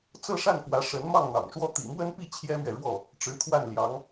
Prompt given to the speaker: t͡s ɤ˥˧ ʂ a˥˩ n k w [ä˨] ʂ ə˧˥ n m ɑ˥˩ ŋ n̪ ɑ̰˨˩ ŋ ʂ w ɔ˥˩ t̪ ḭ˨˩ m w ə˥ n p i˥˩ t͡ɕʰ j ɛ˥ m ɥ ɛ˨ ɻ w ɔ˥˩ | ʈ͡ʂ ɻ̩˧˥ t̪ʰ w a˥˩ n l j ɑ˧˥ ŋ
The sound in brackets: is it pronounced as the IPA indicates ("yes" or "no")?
no